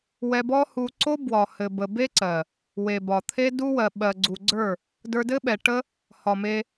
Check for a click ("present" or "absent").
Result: present